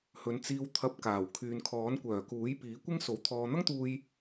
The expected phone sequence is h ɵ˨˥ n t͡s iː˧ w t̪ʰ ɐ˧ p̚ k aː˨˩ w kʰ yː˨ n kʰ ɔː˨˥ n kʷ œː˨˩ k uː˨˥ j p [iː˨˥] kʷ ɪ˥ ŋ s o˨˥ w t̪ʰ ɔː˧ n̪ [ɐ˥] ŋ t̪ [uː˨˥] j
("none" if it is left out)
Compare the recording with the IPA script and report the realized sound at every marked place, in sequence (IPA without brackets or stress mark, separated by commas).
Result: iː˨˥, ɐ˥, uː˧